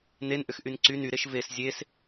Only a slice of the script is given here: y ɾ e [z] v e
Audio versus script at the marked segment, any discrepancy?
yes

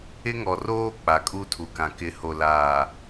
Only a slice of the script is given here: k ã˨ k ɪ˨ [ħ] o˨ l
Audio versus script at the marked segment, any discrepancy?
yes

